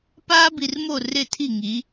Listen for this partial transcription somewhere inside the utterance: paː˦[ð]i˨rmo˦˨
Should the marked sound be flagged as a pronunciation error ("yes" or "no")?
yes